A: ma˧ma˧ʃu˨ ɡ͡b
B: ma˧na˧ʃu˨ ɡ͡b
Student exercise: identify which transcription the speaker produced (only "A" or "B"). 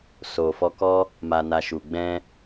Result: B